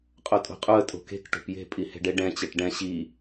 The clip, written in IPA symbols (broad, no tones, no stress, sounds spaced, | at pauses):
qʼ o tʼ o̤ qʼ u ə̯ tʼ o̤ k e̤ k ʈ o̤ p j e̤ pʼ i h e̤ ɖ e ɖ ɛ̃ t͡ɕ e ʈ ɖ ɛ̃ ɕ i